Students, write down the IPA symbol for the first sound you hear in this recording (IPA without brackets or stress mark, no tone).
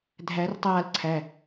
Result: dʱ